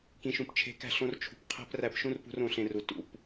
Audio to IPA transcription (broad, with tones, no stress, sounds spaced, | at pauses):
k ĩ˧ ʃ ũ˧ p t͡ʃʰ e̤˧ k æ̤˦˨ ɬ õ˦ r t͡ʃʰ ṳ˧ p qʰ æ̤˦ p r æ˦˨ p ʃ ũ˦ r p ṳ˦ r õ˧ ɬ ẽ˧ r u˨ t ṵ˨ p